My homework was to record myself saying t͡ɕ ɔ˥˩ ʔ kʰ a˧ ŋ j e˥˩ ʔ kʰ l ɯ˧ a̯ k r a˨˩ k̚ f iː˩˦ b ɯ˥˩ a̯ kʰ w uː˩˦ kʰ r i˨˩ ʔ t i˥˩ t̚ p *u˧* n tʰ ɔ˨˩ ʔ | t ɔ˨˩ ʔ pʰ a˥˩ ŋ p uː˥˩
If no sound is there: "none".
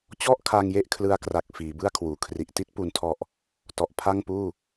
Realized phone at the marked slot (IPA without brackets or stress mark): u˨˩